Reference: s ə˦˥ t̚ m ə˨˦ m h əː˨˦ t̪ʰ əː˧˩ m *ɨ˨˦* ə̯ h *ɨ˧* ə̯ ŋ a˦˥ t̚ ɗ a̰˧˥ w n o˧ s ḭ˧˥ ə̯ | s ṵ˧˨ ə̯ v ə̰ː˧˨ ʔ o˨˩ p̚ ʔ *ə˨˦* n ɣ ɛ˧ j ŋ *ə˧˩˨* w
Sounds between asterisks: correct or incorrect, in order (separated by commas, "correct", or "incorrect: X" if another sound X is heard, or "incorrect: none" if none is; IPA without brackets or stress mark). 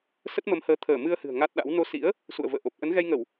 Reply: incorrect: ɨ˧, incorrect: ɨ̤˨˩, correct, correct